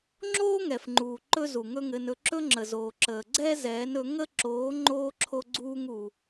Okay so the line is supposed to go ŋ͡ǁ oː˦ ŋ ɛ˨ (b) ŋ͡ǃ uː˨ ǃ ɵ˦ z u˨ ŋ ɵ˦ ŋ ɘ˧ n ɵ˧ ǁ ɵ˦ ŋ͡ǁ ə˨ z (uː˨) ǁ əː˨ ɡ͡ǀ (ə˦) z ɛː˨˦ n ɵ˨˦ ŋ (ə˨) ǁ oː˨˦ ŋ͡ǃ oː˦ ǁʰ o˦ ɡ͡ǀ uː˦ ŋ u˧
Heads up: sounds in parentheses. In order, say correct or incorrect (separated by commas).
incorrect, incorrect, incorrect, incorrect